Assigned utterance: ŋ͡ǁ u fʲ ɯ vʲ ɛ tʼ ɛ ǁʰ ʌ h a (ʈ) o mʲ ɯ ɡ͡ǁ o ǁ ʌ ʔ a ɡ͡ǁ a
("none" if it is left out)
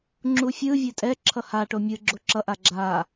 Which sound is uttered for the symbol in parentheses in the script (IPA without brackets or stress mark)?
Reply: ʈ